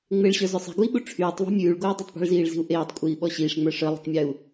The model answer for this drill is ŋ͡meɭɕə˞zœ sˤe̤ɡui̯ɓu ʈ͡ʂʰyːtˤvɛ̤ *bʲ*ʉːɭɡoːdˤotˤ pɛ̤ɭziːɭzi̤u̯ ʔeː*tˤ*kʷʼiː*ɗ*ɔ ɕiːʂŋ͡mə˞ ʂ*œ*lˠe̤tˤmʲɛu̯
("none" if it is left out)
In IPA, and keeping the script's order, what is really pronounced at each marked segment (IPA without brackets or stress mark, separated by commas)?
mʲ, tˤ, ɓ, œ